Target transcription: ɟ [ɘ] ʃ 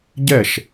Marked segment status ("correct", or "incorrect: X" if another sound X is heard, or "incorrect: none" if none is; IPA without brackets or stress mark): incorrect: ɛ